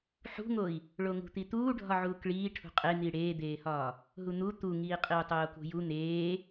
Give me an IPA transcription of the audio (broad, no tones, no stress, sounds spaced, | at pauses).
ħ ṳ ŋ o i̯ | ɭ o ŋ ṳ t̪ i t̪ uː ɖʱ ɒ ʕ uː k ɭ iː ʈʰ ṳ qʼ e n̪ i ɽ eː d̪ eː h ɒː | ɦ u n̪ u t̪ u ŋ iː qʼ i u̯ tˤ oː k ṳ j u n̪ eː